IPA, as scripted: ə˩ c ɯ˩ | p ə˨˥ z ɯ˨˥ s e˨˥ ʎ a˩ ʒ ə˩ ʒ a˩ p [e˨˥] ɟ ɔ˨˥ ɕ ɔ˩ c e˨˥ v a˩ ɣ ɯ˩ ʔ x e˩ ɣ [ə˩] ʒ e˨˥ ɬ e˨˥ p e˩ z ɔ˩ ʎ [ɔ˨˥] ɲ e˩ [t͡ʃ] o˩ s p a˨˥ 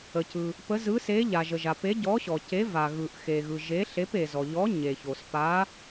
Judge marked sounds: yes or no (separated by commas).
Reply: yes, no, yes, no